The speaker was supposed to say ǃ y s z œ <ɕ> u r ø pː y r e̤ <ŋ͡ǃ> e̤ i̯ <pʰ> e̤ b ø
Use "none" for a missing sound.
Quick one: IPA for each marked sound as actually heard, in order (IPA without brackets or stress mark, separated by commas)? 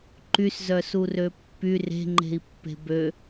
s, ŋ͡ǃ, pː